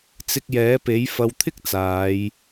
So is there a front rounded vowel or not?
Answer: no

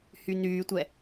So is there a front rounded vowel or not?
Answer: yes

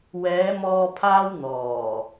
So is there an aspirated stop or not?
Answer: yes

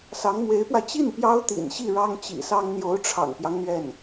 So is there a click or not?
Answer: no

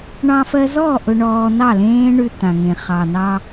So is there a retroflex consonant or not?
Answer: yes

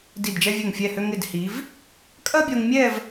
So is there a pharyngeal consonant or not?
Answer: no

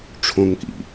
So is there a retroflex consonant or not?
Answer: yes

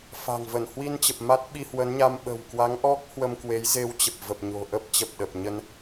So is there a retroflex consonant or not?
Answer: no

